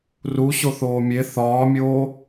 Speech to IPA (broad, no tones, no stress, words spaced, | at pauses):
ru ɕoθoːmʲe θɒːmʲoː